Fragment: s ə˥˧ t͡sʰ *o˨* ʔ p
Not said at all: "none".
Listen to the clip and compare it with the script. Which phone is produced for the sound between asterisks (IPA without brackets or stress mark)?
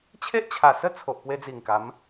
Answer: o˨